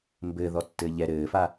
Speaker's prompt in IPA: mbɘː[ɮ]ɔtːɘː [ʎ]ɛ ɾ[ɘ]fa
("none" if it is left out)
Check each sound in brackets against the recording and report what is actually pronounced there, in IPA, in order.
ð, ʎ, ɘː

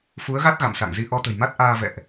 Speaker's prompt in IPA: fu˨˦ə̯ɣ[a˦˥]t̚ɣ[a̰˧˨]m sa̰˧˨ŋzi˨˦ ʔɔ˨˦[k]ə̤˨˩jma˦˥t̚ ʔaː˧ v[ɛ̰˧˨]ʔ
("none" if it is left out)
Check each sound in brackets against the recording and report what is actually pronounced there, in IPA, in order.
a˦˥, a̰˧˨, t̪, ɛ̰˧˨

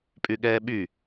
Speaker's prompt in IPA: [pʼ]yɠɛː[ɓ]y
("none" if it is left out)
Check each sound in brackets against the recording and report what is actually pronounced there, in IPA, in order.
pʼ, ɓ

